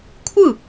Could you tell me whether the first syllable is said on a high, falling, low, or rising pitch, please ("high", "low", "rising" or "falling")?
falling